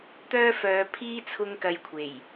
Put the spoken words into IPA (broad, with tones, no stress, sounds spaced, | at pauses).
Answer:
t̪ œː˥ f œː˨˧ pʰ iː˥ t͡sʰ ʊ˥ ŋ k ɐ˧ j kʷʰ e˨˩ j